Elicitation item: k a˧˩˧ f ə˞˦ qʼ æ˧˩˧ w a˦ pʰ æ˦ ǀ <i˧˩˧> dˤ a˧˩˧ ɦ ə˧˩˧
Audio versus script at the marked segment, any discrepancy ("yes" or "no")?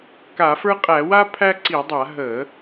no